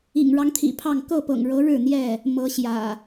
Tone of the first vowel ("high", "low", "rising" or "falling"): low